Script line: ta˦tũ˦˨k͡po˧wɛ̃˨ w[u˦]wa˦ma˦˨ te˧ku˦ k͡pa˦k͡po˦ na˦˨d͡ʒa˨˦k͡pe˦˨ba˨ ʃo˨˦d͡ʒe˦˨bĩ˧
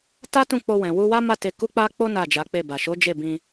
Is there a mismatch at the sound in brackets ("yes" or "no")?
yes